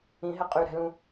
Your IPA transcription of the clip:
ĩ ɦ ɛ qʼ y ɾ ɛ̤ l ũ

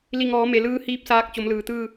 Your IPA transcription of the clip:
l i˧˩ ŋ ɔː˩˧ m e˩ l ɯː˧˥ h iː˧˥ p̚ s aː˧ k̚ t͡ɕ o˩˧ m l ɯː˩ t̪ ɯː˧˩

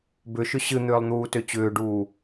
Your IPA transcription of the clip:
b ʏ ʃ ʏ ɕ ɨ n̪ ʏː lˠ n̪ uː t ø t͡ɕ ʏː ɖ uː

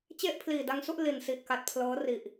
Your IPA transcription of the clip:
t͡ɕ e˥˩ ʔ pʰ l iː˨˩ d a˧ ŋ s u˥˩ ʔ l i˨˩ n s i˨˩ ʔ k a˨˩ t̚ pʰ l ɤː˦˥ r i˨˩ ʔ

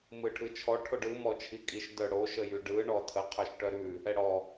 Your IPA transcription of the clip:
m ɯ ʈʰ ɯ t͡ʃʰ ɔ ʈʰ o ɖ ɯ m ɔ t͡ʃʰ i kʼ i ʃ d œ ɽ o ʃ ə j y ɖ ɯ ɳ ɔ tʰ ə qʰ œ ʃ ʈ œ ɾ ʉ | ɛ ɽ ɔ

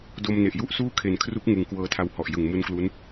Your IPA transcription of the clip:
d o˧ m n e˨˩ ʔ j u˥˩ ʔ s uː˥˩ kʰ e˨˩ n kʰ r u˦˥ k̚ ŋ ɯ˩˦ ŋ k w ɤː˧ tʰ a˧ w h ɔ˨˩ ʔ j ɯ˨˩ ŋ m u˦˥ n k l u˦˥ n

